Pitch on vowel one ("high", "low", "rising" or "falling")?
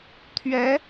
rising